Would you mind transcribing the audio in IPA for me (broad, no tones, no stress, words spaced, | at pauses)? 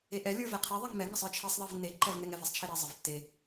eʔɛ lʲə˞vɛqʰe ðˤɛŋmɛ ŋəsˤə˞t͡ʃʰesˤ ðˤevnːe ǃɛvnɛŋɛv ɛsˤt͡ʃʰeɾɛ zˤəvtːe